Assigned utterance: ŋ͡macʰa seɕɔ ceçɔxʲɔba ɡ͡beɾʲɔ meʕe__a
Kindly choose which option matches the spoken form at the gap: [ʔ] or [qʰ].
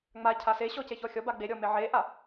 ʔ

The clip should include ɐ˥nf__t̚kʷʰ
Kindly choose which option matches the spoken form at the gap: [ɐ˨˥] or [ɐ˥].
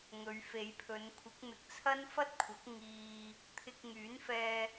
ɐ˥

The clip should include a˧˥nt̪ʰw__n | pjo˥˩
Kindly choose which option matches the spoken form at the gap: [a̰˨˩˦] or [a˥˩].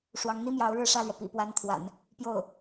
a̰˨˩˦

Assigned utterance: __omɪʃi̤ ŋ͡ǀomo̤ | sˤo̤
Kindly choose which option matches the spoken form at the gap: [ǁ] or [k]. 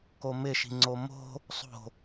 k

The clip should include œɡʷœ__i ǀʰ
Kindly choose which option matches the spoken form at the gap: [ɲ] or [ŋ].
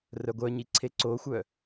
ɲ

